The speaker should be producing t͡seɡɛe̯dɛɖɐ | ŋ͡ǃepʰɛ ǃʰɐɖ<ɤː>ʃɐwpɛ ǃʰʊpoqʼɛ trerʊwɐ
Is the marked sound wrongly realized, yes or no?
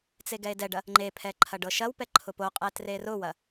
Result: yes